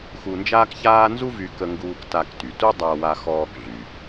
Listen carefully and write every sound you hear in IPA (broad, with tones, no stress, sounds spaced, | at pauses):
x u˧ n d͡ʒ aː˥ k ç aː˥ n z u˥ v y˧ k ə˧ ŋ ɡ uː˧ k t a˧ k t y˩ t u˥ dˤ a˧ w a˧ x ɔː˧ k ɮ y˩